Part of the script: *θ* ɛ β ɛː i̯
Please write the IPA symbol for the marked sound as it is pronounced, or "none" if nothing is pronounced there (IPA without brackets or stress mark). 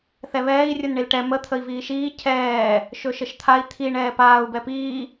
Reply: θ